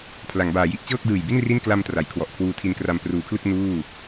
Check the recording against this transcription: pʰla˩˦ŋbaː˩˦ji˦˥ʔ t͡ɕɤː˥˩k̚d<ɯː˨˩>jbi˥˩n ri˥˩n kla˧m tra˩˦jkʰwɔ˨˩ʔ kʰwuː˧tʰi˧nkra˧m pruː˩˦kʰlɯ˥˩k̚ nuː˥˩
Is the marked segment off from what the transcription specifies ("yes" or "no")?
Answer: no